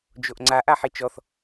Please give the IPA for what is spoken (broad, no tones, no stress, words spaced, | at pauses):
d͡ʒoʔŋ͡ǀa ʔaħit͡ʃɔθ